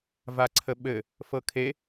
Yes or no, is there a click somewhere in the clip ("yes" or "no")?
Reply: yes